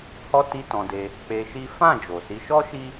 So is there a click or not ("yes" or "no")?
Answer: no